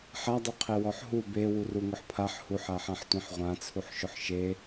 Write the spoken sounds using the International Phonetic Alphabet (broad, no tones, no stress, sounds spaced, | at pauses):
ħ a dˤ u qʰ e w ɔ ħ ɦ u b e w u r u ŋ ʊ ħ pʰ a ħ h u ħ a ħ ã ħ tʷ ĩ ħ ʁʷ ã t͡sʰ u ħ ʃ ʊ ħ ʃ e